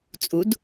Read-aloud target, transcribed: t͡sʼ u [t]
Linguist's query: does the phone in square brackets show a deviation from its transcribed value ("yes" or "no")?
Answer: yes